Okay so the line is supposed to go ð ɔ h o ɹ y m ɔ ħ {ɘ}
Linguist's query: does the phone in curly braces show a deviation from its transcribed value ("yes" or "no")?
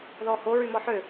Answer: yes